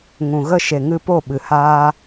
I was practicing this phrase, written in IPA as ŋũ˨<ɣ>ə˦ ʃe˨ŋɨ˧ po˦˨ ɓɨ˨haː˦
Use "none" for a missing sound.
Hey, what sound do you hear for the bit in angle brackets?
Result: ɣ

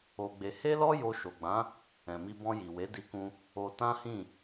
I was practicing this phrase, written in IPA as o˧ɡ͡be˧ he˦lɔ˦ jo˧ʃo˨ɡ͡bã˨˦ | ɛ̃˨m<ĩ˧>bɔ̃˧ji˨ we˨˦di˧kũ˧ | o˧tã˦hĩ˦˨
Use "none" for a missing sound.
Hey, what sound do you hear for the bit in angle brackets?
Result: i˧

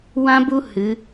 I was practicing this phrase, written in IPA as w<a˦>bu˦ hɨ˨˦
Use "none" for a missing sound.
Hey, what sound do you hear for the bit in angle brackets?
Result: ã˦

